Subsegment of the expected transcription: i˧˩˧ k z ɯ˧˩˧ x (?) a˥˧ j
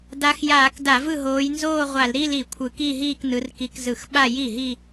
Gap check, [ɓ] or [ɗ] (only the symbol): ɓ